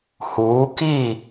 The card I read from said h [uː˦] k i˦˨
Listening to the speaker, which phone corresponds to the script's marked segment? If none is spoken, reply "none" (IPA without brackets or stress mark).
uː˨˦